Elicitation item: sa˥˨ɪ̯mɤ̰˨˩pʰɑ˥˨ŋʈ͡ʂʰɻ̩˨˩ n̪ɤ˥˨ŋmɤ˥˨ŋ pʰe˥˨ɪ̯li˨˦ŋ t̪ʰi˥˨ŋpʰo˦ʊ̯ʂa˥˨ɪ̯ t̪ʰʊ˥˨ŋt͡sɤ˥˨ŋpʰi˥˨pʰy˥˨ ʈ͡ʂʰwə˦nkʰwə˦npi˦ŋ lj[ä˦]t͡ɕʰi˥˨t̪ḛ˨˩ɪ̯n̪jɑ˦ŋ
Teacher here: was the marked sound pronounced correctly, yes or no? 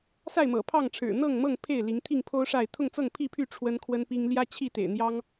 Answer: yes